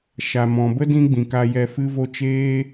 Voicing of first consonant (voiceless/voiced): voiceless